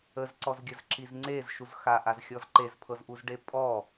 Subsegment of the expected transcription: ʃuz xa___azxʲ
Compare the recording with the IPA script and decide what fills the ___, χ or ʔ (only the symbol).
ʔ